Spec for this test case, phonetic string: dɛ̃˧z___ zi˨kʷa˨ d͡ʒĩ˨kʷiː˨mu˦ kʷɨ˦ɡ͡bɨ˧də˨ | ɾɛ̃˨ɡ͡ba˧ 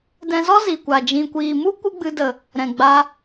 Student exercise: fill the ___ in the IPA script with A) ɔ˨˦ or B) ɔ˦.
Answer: B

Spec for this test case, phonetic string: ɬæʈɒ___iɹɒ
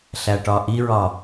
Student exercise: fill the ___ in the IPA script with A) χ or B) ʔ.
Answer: B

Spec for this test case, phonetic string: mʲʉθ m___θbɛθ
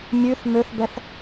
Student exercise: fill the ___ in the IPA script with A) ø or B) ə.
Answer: A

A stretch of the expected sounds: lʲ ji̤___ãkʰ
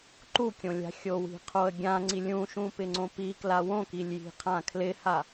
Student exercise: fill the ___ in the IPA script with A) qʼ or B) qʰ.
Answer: B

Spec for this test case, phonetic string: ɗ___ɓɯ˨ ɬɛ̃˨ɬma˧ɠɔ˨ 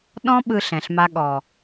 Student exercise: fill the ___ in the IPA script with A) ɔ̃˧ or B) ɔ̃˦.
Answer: A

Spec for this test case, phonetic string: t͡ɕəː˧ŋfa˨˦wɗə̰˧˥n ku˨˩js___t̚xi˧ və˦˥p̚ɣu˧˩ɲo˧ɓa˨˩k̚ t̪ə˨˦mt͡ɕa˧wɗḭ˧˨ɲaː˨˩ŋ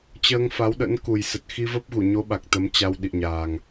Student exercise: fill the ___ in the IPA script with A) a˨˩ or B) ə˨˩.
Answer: B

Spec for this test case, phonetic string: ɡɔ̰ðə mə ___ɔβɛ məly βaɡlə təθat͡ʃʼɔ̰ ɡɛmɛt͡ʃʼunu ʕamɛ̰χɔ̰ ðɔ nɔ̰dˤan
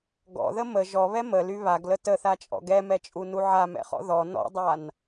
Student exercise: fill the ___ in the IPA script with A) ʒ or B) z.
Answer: A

